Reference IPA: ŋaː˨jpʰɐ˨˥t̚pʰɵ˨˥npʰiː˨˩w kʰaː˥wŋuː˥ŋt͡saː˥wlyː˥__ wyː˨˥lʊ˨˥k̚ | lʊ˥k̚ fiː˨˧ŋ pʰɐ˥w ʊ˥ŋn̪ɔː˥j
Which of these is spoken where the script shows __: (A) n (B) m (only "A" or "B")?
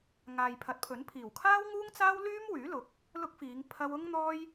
B